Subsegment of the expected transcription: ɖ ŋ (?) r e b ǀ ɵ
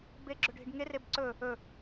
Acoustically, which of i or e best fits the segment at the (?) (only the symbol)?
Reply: e